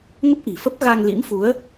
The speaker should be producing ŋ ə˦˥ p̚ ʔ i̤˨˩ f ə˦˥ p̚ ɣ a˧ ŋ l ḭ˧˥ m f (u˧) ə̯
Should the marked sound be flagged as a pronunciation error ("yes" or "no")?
yes